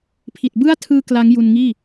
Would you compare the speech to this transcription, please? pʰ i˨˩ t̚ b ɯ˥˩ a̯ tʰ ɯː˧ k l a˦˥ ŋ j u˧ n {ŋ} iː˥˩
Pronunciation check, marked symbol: correct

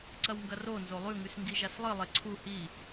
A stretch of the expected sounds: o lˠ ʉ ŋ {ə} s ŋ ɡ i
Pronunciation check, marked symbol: incorrect: ʉ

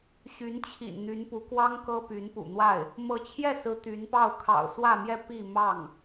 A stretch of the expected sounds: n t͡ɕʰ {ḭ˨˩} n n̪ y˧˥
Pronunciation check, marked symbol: correct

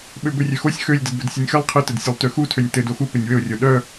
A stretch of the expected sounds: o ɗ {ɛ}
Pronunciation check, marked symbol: incorrect: œ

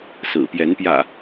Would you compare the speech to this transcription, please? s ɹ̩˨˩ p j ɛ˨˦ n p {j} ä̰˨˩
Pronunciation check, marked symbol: correct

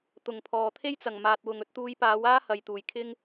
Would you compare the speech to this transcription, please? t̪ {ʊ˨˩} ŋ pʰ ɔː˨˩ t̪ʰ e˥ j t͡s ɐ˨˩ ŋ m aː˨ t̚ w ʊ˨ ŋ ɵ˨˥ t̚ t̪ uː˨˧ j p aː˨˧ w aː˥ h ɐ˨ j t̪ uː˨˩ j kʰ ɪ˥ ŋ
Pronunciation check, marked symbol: correct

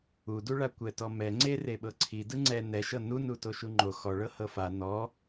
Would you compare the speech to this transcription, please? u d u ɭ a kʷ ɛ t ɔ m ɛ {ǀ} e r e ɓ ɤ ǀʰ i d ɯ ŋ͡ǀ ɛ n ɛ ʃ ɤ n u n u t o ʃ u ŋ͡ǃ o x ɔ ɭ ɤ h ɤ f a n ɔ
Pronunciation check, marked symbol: incorrect: ŋ͡ǀ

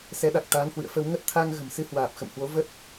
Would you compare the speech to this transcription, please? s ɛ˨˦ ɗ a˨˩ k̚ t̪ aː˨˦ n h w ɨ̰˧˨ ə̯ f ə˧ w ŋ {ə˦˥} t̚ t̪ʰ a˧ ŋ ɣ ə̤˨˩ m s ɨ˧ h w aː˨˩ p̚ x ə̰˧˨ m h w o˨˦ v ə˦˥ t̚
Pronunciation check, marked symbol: correct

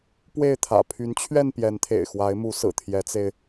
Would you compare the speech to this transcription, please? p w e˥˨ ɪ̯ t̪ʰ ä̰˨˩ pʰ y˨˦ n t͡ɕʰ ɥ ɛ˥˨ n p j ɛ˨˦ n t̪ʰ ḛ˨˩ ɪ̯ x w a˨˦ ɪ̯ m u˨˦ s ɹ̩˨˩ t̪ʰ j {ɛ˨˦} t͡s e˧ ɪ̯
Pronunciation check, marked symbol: correct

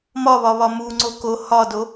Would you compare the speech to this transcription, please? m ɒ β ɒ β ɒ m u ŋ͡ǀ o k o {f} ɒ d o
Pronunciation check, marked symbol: incorrect: h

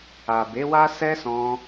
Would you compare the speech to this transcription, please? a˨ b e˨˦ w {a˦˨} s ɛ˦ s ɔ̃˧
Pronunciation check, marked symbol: incorrect: a˦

